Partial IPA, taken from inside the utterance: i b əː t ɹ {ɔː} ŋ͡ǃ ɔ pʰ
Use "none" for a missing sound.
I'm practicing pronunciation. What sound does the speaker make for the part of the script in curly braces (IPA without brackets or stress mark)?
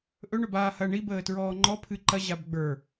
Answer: ɔː